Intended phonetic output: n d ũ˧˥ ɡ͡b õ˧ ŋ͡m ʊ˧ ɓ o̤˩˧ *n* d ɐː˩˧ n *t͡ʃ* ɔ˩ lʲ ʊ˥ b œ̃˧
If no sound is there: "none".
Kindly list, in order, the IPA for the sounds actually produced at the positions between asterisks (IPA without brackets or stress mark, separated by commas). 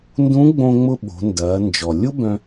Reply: n, d͡ʒ